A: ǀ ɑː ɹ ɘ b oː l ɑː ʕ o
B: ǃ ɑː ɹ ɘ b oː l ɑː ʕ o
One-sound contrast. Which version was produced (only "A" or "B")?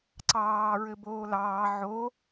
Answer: A